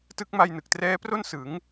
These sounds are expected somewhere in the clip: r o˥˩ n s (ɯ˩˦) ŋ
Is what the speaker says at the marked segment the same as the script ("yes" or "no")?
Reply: yes